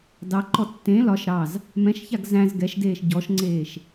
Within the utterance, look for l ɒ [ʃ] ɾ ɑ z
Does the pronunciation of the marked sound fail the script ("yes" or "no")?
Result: no